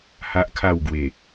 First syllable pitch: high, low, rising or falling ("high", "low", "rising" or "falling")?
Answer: high